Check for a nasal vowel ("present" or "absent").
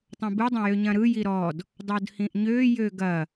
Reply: present